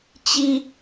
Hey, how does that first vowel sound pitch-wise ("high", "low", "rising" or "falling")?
high